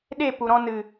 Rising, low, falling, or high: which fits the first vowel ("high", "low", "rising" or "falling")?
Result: falling